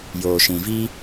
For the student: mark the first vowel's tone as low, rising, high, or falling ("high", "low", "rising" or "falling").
low